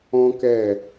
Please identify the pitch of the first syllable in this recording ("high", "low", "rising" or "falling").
high